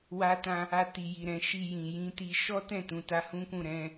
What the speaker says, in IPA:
wa˧tã˧ | a˧ti˨ ji˨ɾɛ̃˧ʃi˧ jĩ˨jĩ˧ti˧ ʃɔ˦tɛ̃˦˨tũ˨ ta˨˦hũ˦kũ˦˨ɾɛ̃˧

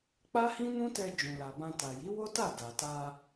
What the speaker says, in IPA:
k͡pa˦hĩ˦nũ˦tɛ˧ d͡ʒũ˨la˨bã˧ ta˨ji˨˦wo˦ta˦˨ da˨ta˧

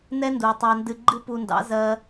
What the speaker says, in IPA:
nɛ˦ndu˨ tˤɑ˧ndɨ˧ɡ͡ǃɨ˦ pu˧ndɑ̰˨˦ zɜ˦

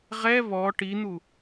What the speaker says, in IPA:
ʁɛ βɔ ʈin̪u

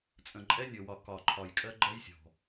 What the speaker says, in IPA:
t͡sʼə̃˨˩ǃʼɛ˦˥nʲɔ˨˩wɒ˨˩ kɒ˨˩ ǃʰɒ˨˩jkʼɜ˦˥ ɡ͡ǃɜ˦˥jsʲɔ̤˨˩

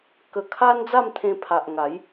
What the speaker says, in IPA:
kə˧ kʰa˦nd͡za˥˧mt̪ʰẽ˧ pʰa˨ʔŋa˨˦j

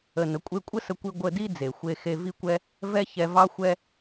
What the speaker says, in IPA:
ə˩nə˩ kʷʼe˧kʷʼə˥sə˧kʷi˧ ɡʷə˧di˥ d͡ze˩xʷe˧xe˧ vi˥kʷɛ˥ | vɛ˥çɛ˧vɑ˥ xʷɛ˥

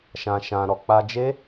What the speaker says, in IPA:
ʃã˧ʃã˧ɾɔ˧ k͡pa˧d͡ʒe˦

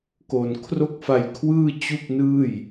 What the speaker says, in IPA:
ko˨˩n kʰro˥˩k̚fa˧jkʰwɯː˥˩ t͡ɕu˥˩k̚nɯː˥˩j

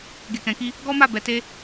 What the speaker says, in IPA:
ɡe˨kɛ̃˨ki˧ | ɡɔ˦ma˦˨ bɛ˨˦te˦

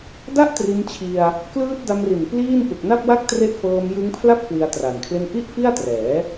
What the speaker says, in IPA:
da˥˩ʔtri˧n t͡ɕʰi˧a̯ | klɯː˦˥t̚da˧mri˨˩n pliː˥˩n ʔu˨˩k̚na˥˩p̚wa˥˩k̚tre˦˥ʔ fɤː˧m jɯ˦˥ŋpʰla˥˩p̚ kwi˧a̯tra˨˩nkʰle˥˩n ʔi˥˩ʔfi˥˩a̯trɛː˩˦

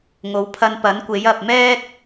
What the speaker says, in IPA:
ŋo˨˧wpʰɐ˧npɐ˨˥nkʷe˨˥j ɐ˨p̚mɛː˥k̚

